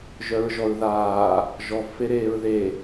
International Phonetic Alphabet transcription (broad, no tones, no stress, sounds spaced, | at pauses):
ʒ œ ɹ ʒ ɔ ɹ ð aː | ʒ ɔ v f e ɾ eː ɹ ð e